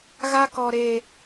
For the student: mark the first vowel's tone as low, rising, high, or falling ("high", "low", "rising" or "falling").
high